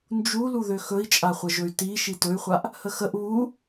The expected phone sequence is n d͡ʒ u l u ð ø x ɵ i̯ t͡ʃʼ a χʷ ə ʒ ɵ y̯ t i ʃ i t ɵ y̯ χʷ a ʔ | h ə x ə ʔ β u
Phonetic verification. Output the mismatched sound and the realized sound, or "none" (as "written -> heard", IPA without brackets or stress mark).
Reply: none